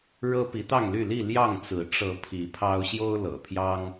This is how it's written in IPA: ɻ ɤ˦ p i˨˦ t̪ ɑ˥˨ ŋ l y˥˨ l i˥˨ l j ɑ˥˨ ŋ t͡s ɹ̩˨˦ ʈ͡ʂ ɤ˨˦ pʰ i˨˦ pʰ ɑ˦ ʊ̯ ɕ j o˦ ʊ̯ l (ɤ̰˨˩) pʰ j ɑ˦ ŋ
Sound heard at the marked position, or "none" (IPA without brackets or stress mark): ɤ̰˨˩